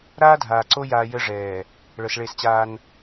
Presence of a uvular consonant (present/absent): absent